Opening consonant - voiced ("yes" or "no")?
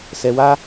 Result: no